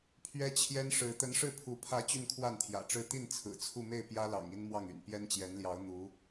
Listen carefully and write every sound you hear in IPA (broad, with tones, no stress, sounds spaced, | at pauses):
pʰ ɥ ɛ˥ t͡ɕʰ j ɛ˥ n ʂ ɻ̩˧˥ t̪ ə˧˥ n ʂ ɻ̩˥˩ pʰ u˧˥ pʰ ä˧˥ t͡ɕ y˥˧ n kʰ w a˥˩ n t̪ʰ j ä̰˨˩ ʈ͡ʂ ɻ̩˥˧ t̪ i˥˩ n t͡sʰ ɹ̩˨˩ t͡sʰ u˥˧ m e˥˩ ɪ̯ p j ä˥ l ɑ̰˨˩ ŋ i˥ n m w ɑ˥˩ ŋ y̰˨˩ n p j ɛ˥ n t͡ɕ j ɛ˧˥ n l j ɑ˧˥ ʊ̯ n̪ u˧˥